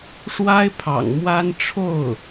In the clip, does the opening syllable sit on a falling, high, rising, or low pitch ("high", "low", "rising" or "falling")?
high